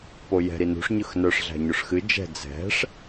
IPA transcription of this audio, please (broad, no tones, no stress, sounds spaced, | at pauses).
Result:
p o j ɛ̤ ɾ i n ṳ ʂ ɲ ɯ x n œ ʂ ɮ æ̤ ɲ o ʂ x ɨ d͡ʒ ɛ̤ d͡z ɛ̤ ʂ